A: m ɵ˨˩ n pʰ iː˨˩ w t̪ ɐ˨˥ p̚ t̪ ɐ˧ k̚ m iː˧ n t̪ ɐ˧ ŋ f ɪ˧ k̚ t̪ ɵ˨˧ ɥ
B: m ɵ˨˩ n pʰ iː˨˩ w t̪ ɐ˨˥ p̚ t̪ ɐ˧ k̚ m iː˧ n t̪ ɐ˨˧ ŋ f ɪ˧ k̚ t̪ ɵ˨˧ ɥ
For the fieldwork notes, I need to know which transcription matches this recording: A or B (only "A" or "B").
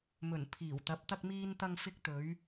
A